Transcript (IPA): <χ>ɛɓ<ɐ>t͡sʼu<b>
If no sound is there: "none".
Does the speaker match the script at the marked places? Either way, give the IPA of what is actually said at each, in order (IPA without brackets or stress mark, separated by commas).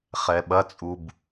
χ, ɐ, b